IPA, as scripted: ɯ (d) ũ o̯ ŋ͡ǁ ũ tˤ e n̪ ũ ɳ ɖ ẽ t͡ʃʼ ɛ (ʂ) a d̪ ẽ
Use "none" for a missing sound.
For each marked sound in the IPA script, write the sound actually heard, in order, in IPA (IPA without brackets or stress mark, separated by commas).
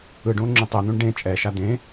ɖ, ʃ